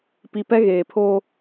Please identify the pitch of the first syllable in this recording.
low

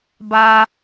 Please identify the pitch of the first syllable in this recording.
high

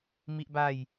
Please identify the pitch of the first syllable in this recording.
high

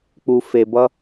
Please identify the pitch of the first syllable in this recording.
low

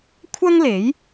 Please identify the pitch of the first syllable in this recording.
high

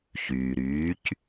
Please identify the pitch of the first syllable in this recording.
low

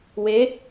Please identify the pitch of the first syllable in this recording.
rising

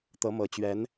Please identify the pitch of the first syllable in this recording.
rising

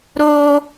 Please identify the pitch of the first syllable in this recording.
high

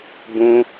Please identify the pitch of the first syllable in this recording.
high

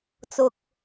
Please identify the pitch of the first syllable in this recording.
low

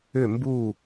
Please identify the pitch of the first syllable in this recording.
falling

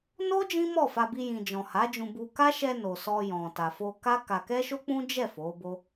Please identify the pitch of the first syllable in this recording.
high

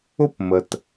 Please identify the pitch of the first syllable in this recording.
high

